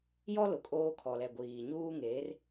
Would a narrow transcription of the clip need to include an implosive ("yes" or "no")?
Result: no